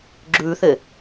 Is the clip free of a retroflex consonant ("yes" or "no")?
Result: yes